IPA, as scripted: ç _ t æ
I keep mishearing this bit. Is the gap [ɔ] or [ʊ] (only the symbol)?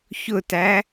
ʊ